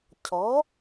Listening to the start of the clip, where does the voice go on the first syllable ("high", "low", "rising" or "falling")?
rising